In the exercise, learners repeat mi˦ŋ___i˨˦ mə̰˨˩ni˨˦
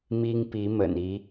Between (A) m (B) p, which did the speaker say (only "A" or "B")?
B